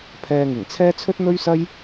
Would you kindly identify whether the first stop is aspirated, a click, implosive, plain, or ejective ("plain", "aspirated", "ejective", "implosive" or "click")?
aspirated